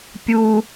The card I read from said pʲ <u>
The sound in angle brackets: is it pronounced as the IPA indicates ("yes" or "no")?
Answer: yes